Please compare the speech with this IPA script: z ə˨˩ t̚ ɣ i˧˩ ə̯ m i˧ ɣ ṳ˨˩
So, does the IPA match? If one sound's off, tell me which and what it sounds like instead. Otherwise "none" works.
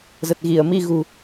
none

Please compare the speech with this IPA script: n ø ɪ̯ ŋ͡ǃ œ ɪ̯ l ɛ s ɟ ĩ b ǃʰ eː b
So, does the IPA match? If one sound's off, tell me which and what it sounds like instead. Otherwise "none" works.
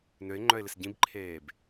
ɛ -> ɪ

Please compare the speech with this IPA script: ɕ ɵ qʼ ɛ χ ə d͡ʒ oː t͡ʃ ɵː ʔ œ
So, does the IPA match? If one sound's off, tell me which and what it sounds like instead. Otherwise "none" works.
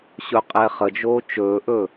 œ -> ɵ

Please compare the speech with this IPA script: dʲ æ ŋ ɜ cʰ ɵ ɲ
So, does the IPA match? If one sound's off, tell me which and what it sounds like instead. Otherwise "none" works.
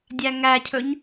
ɜ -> æ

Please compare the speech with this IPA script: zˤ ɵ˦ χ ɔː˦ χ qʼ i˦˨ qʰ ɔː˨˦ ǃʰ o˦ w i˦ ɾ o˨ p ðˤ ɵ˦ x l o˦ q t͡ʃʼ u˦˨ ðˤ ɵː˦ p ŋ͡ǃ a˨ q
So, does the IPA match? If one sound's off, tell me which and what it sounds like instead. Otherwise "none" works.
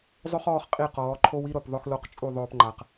qʰ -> q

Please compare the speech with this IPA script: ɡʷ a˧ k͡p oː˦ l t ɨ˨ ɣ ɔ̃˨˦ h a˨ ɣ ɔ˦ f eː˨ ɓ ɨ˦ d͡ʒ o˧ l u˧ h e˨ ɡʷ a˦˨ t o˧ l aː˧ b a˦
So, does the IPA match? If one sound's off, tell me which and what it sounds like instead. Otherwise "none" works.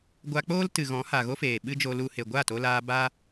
ɔ˦ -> o˦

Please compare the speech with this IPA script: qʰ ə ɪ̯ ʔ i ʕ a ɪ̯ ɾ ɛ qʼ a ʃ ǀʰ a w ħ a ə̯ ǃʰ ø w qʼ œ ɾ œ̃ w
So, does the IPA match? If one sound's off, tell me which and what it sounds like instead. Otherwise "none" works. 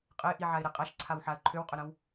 qʰ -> qʼ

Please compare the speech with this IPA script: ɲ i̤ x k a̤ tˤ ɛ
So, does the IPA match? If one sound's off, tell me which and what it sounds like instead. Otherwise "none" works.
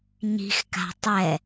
none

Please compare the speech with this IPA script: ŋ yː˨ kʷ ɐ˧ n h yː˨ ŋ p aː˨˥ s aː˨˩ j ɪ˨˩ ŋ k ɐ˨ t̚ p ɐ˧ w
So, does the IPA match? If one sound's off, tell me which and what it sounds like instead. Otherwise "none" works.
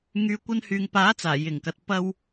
s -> t͡s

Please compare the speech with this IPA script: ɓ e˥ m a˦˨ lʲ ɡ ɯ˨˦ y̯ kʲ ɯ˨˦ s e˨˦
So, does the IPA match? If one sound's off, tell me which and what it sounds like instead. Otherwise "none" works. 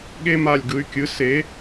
ɓ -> ɠ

